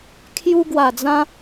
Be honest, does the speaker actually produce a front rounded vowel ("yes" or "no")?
no